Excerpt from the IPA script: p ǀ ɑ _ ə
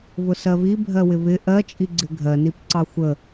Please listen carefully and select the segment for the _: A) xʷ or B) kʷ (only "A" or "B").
A